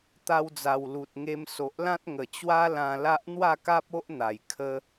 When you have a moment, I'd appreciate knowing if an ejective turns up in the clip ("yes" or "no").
no